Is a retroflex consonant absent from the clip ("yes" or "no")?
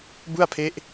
yes